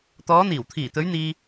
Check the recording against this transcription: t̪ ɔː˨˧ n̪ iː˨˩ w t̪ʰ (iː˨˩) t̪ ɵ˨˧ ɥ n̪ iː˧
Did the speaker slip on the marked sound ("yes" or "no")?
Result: no